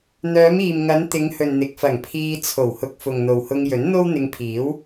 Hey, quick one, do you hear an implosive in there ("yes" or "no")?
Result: no